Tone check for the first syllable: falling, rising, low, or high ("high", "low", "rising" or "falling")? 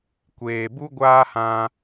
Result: low